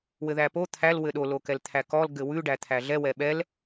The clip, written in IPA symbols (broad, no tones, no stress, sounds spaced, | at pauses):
w ɘ ð æ p o t̪ʰ æ l w ɘ ɗ o l o k ɛ l t̪ʰ æ k ɔ l ɡ ɘ w ʉ ɖ æ t̪ʰ æ ɮ ɛ w ɛ ɓ ɛ l